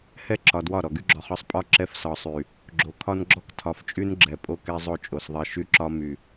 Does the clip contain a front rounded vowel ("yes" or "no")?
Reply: yes